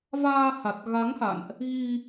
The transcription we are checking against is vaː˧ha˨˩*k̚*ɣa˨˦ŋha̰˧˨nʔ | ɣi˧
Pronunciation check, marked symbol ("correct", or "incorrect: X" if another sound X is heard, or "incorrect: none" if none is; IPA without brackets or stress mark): incorrect: t̚